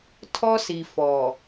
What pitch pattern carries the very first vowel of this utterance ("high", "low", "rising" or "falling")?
high